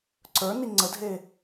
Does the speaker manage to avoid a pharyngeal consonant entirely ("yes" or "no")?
yes